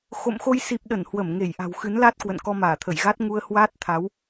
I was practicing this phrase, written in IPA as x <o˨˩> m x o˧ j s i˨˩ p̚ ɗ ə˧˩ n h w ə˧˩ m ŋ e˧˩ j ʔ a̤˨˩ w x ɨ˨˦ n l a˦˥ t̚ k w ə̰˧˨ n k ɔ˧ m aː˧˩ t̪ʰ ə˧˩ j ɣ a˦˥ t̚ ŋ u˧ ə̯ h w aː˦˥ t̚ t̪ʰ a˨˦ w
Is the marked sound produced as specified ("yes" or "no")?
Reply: no